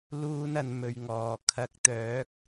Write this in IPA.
luː˥nɐ˧n mɵ˧ɥŋɔː˨ kʰɐ˨˥k̚t̪œː˨˥k̚

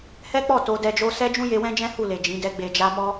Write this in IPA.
hɛ˦k͡pɔ˦˨ to˧dɛ˧ d͡ʒo˧sɛ˦d͡ʒũ˦ je˧wɛ̃˦d͡ʒɛ̃˦ hu˦˨le˨ d͡ʒĩ˨˦dɛ˦ɡ͡be˧d͡ʒa˦ mɔ˧

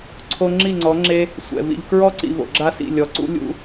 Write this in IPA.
ǀʰo˧ŋ͡ǁi˦˨ŋ͡ǀɔ˨˦ ŋ͡ǁe˧ | sʷɛ̰˨ vḭ˨ʎkɹɔ˦ǀḭ˨ vo̰˨ɡ͡ǁa˦sḭ˦˨ lʲɔ˨ǀṵ˦ lʲṵ˧

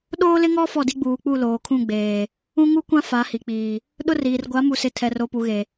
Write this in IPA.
ɗoː˦lɪ˦ŋɔ˦ fɔ˦˨di˦ɡ͡buː˨k͡pu˦˨ loː˨kʰũ˦˨ ɡ͡beː˨ | ũ˦ŋu˦kʷã˦ fa˨˦hi˨ k͡piː˨ | ɗʊ˦riː˨r ɡʷa˨˦mu˨sɪ˨ tʰɛ˨ro˨pu˨ɣe˨

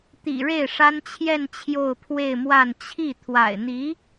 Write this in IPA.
t̪ḭ˨˩ɻe˥˩ɪ̯ʂa˥n t͡ɕʰjɛ˥˧n t͡ɕʰjo˥˧ʊ̯pʰwe˥˧ɪ̯mwa˥˧n t͡ɕʰi˥˩ t̪ʰwa̰˨˩ɪ̯n̪i˧˥

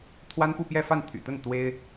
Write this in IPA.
t̪ʰwa˥npu˥˧pjɛ˥˧fa˥˩n t̪ʰy̰˨˩ t̪ə˥˩n t̪we˥ɪ̯

